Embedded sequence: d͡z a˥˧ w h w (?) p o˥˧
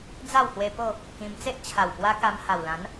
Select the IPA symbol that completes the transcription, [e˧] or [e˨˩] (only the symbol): e˧